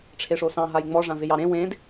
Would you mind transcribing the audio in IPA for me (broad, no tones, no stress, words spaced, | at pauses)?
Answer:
ʈ͡ʂʰeʂosɑ̃ ɦajŋ͡mɔ ʐãvɪjɑɾẽ wẽd